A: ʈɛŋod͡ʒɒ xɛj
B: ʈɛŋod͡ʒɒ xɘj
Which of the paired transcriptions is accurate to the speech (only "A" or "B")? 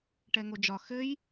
B